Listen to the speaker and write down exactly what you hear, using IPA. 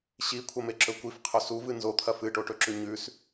ɕikʷʰɐmeǁɵ kʷifqʰɵ suvɨ nzot̪ʰɐ fɨʈoʈɵǁʉ ɲʉs

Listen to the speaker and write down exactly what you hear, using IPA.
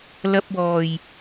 lɐ˧p̚wɔː˨˩j

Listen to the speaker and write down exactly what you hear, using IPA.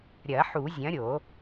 ɾʲɐ˨˩˦ ħu˨˩˦zʲɐ̃˨˥ɾʲo˨˩˦

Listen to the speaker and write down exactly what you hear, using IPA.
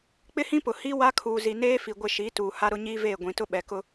k͡pɪ˦hĩ˦pʊ˨ hi˦ wa˦kʰuː˨zi˨ neː˦fi˨ ɡʷɪ˦˨ ʃiː˨˦tuː˨ ha˦ɾʊ˦ ɲiː˦veː˦˨ ɡʷĩ˨tʊ˦ ɓɛ˨kʊ˦

